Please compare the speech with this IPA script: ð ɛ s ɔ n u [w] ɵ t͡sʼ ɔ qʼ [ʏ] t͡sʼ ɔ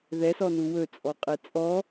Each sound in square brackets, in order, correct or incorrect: correct, incorrect: ɛ

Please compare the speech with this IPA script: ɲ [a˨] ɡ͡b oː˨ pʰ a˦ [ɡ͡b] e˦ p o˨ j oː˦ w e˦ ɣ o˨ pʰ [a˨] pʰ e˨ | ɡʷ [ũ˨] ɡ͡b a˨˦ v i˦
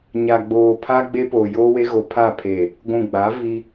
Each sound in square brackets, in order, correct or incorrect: correct, correct, incorrect: a˦˨, correct

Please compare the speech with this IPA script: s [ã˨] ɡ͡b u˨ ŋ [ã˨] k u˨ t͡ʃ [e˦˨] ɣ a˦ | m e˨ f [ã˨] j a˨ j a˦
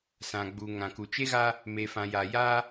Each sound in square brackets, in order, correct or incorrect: correct, correct, incorrect: e˦, correct

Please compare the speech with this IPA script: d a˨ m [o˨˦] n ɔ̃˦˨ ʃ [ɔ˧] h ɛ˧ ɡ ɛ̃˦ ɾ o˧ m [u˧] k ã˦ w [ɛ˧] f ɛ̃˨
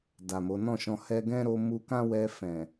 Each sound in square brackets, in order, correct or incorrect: correct, incorrect: ɔ̃˧, correct, correct

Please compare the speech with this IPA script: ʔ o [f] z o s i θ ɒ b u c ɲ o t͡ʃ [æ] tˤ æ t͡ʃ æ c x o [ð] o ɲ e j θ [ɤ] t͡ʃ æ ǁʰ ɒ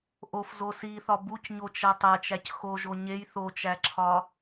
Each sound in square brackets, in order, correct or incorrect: correct, correct, incorrect: ʒ, incorrect: o

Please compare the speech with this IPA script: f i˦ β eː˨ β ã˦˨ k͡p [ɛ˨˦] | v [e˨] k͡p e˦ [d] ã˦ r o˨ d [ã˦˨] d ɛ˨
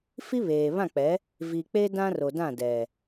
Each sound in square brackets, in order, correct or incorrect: correct, incorrect: i˨, correct, correct

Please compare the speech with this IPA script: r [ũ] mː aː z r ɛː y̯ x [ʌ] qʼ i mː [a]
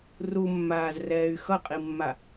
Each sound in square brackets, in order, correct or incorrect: incorrect: u, correct, correct

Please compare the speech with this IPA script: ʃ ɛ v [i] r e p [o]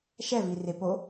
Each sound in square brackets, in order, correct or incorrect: correct, correct

